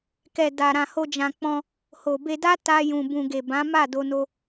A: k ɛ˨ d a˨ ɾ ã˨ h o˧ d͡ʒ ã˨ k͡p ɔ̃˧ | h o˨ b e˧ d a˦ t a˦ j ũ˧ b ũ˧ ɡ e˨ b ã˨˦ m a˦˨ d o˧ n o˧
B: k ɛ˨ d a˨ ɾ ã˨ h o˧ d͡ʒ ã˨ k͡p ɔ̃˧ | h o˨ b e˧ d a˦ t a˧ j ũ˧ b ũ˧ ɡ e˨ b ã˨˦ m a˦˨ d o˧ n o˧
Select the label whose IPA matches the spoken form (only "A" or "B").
A